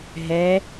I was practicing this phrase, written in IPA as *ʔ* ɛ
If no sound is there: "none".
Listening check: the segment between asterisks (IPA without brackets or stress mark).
ɦ